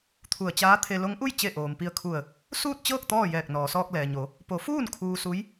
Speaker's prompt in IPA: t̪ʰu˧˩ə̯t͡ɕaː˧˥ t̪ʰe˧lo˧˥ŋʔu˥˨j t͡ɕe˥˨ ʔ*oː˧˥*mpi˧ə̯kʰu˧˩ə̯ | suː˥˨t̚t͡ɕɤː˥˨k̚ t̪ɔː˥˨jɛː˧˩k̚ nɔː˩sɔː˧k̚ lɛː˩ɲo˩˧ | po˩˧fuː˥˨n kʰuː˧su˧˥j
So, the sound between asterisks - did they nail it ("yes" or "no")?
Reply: no